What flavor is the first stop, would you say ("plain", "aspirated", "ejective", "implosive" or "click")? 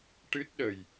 plain